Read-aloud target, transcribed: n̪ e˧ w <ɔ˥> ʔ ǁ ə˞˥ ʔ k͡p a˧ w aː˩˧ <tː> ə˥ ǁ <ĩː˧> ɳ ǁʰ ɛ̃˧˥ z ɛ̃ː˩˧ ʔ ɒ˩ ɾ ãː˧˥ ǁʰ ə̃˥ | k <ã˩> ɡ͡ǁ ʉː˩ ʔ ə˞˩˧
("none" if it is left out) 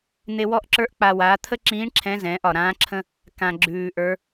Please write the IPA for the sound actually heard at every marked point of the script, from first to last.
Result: ɔ˥, t̪ʰ, ĩː˧˥, ã˩

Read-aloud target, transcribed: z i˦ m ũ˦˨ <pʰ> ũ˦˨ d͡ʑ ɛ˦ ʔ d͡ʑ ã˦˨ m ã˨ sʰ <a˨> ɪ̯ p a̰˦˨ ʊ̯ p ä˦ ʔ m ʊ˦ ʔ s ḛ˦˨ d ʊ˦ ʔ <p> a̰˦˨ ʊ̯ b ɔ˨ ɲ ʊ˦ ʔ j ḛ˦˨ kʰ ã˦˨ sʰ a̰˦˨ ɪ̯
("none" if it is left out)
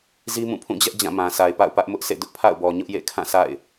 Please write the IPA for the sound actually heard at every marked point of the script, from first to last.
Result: pʰ, a˨, pʰ

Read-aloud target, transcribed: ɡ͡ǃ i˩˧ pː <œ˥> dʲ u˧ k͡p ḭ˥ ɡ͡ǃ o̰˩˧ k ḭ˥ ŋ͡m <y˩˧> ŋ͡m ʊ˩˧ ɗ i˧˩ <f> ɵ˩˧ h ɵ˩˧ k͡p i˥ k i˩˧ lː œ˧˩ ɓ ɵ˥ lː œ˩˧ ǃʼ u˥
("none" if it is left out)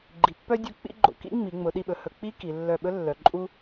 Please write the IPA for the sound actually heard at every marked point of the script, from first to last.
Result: œ˥, i˩˧, ɓ

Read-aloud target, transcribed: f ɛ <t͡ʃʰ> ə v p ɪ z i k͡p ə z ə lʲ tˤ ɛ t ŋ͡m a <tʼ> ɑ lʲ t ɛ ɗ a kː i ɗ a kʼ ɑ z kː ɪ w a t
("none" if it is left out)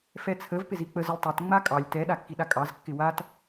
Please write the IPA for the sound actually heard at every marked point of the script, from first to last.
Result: t͡sʰ, kʼ

